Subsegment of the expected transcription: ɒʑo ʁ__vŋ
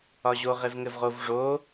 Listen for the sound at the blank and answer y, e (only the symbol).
e